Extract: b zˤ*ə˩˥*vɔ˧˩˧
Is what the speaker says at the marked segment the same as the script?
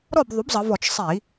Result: no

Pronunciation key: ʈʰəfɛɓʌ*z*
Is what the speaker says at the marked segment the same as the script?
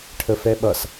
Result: no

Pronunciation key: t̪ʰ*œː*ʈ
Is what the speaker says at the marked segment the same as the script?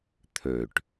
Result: no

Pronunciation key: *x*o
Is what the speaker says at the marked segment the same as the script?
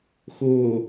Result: yes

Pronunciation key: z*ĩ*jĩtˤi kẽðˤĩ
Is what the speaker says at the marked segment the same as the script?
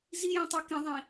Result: no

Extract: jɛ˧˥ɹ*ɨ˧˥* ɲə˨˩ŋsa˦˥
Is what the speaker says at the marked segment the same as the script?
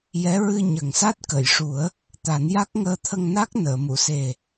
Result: no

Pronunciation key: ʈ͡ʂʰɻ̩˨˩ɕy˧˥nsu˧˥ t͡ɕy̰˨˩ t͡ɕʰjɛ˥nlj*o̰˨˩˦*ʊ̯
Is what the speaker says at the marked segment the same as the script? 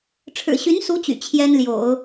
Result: yes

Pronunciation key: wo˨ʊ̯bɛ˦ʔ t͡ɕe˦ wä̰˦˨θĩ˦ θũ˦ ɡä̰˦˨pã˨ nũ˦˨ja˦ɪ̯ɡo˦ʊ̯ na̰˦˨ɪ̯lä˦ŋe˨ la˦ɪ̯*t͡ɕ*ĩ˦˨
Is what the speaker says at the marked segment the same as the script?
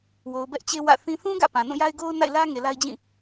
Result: no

